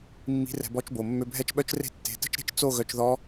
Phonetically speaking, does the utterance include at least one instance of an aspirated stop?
no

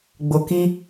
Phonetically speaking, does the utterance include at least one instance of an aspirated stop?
no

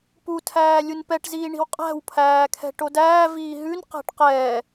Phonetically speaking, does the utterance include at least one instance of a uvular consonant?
yes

